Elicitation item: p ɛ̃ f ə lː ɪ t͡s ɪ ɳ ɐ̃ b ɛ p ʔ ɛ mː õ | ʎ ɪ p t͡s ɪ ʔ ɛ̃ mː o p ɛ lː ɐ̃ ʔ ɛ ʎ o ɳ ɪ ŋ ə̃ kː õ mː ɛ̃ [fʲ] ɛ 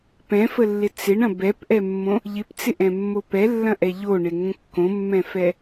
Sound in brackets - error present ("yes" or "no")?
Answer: yes